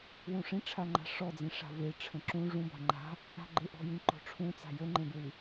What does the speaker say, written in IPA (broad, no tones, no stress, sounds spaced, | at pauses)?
w ũ ʂ ĩ ʈ͡ʂʰ a ŋ͡ǃ a̤ ʂ ɔ d͡z ĩ ʂ a̤ v e ʈ͡ʂʰ ə̃ ǁ ũ ʐ ũ b a̤ ŋ͡ǃ a̤ | a̤ ɡ͡ǃ e ʔ ɔ̤ j ĩ ǃ ɔ̤ ʈ͡ʂʰ ũ t͡s a̤ j ə ŋ͡ǃ ẽ b ɹ ɨ